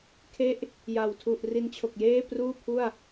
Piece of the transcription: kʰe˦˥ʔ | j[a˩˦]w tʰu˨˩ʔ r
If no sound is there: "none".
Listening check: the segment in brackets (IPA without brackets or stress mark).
a˨˩